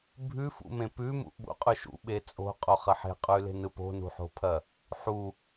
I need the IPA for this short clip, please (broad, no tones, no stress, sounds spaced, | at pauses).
bʱ ʉ f ṵ m ẽ p ʉ m ṵ ɓ ṵ qʼ ʉ ʃ ṵ ɓ e t͡sʼ o̤ qʼ o χ ɐ ħ e̤ qʼ ʉ l e̤ n ɯ p o̤ n ṳ ħ o̤ pʰ ɐ | ħ u